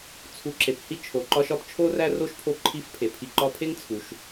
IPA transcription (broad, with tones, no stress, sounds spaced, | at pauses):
t͡sʰ u˨ ǁ e˩ p h i˥ t͡ʃʰ o˩ ǃ ɒ˥ ʃ ɒ˥ p t͡ʃʰ o˥ r æ˥ r o˥ ʃ pʰ o˦ ǃʰ i˥ f pʰ e˩ pʰ i˨ ǃ ɒ˦ pʰ e˥ ŋ t͡sʰ u˩ ʃ